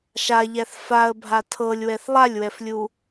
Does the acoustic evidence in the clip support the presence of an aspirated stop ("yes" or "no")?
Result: yes